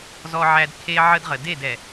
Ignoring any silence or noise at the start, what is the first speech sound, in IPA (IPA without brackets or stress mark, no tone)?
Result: z